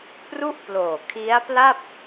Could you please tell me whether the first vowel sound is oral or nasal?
oral